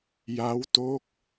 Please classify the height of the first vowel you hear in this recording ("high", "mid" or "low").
low